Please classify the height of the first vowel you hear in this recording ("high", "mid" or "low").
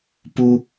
high